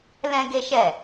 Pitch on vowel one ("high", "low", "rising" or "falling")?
high